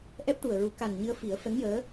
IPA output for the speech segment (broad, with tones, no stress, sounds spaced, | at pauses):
ʔ ɛ˦˥ p̚ ʈ u˨˩ ə̯ ɹ u˨˩˦ k a˨˩ n ɲ ɨ˧ ə̯ f i˨˩˦ ə̯ f ɛ˧˥ ŋ j əː˧˥